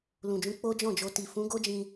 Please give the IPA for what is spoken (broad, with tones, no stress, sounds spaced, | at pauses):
l ũ˨ d͡ʒ ũ˧ k͡p o˦ d͡ʒ ɔ̃˦˨ d͡ʒ o˧ t i˨ f ũ˨˦ ɡ o˦ d͡ʒ ĩ˧